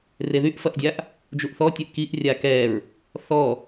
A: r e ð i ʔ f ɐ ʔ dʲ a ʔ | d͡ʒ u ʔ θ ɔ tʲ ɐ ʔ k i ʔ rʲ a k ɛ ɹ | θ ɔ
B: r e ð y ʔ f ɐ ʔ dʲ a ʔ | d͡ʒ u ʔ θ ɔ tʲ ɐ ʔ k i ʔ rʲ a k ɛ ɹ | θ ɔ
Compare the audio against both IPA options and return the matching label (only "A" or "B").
B